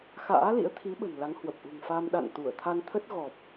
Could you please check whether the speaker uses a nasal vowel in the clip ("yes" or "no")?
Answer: no